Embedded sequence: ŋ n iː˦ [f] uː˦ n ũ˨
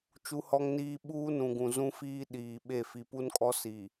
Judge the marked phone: incorrect: ɓ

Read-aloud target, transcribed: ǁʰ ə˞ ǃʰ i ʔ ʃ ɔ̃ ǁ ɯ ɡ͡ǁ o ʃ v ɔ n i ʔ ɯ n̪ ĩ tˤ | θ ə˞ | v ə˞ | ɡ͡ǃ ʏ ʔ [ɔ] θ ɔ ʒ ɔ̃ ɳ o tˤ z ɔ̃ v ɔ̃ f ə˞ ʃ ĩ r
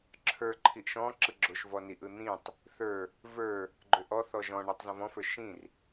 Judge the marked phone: correct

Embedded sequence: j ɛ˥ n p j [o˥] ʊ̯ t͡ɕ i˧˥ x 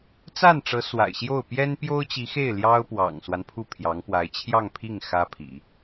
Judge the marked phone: correct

